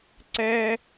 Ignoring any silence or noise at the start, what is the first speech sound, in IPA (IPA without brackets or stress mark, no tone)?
ǀ